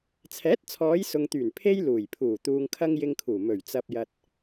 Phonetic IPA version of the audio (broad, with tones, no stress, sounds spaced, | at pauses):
t͡sʰ ɛː˨˥ t̚ t͡sʰ ɔː˨˧ j s ʊ˨ ŋ t̪ yː˨˩ n pʰ e˥ j l uː˨˩ j pʰ uː˨˩ t̪ uː˨ ŋ kʰ ɐ˧ ŋ j ɪ˧ ŋ kʰ uː˨˩ m ɵ˨˩ ɥ t͡s ɐ˨ p̚ j ɐ˧ t̚